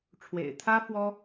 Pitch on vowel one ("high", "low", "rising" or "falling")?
low